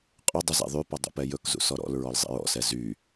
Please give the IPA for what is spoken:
qʼɵdˤu zɛ̰ðˤypɔ dˤṵpɛjɵkzṵ sɔɾɔ̰lɹɔl zˤḭɹɔ̰sɛ zy

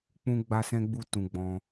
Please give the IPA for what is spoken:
k͡pũ˦ɡ͡ba˦ sɛ̃˦ɡ͡bu˦˨ tũ˧ɡ͡bɔ̃˧

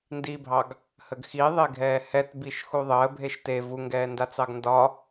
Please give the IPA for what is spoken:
ndibʱɑɡ | həɡxiðˤeɡʱɛː hɛtbiʃ xuðˤəː bʱeʃte vuŋɡɛːndat͡sɑɡ ndɒ

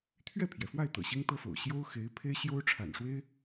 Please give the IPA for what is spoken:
t̪ʰɥɛ˥˩pʰjɛ˩fwa˥˩ɪ̯ t̪ɤ̰˨˩ɕi˥ŋt̪ɤ˥fo̰˨˩ʊ̯ ɕjo˥ʊ̯xe˧˥ɪ̯ pʰe˥ɪ̯ɕjo˥ʊ̯ ʈ͡ʂʰa̰˨˩nʂwe˥ɪ̯

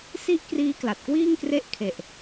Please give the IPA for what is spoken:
si˥˩ʔkriː˦˥kla˨˩t̚ kwiː˥˩ŋkre˦˥ʔ kʰe˨˩ʔ

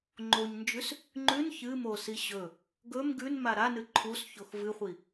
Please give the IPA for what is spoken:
ŋ͡ǃoɲnd͡ʒʉs | ŋ͡ǃʉn çɨmosi ɕɵ | ɡɵm ɡʉnma ɾanɨ ǃʰusçox vɨχʷi

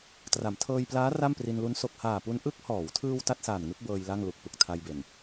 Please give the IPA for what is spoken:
tra˩˦mtʰɤː˧jplaː˦˥ ra˥˩mpri˧nlu˦˥n so˨˩k̚haː˨˩pu˧n ʔɯ˦˥k̚hɔː˩˦wtʰɯː˧w ta˥˩t̚saː˨˩nŋɯ˦˥k̚ bɤː˧j la˥˩ŋlu˨˩k̚pɯ˨˩k̚ tʰa˧jbe˨˩n

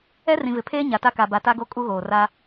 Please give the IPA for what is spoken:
ɛ˦rĩ˨vɪ˨pʰeː˦ ɲa˨ta˦ka˨ba˨ ta˦ɡo˦ kʼu˦ɣoː˨ra˦

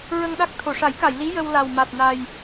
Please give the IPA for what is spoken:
ɹə˧ŋɗa˦˥k̚ t̪ʰo˨˩˨ʂa˨˩˦jka˨˩˨jli˧˥ jə˧wla˨˩w ma˨˩t̚ na˨˩j

